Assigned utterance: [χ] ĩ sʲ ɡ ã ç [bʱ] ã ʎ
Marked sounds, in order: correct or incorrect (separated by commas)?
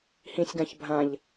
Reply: incorrect, correct